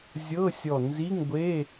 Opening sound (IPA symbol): zʲ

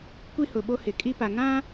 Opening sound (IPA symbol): kʷ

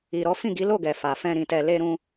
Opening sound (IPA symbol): i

